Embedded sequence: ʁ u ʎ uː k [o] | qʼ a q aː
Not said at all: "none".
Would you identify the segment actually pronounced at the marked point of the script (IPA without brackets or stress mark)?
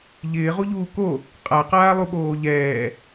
o